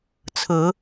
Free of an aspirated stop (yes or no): no